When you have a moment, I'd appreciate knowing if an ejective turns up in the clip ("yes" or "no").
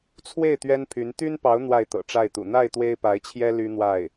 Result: no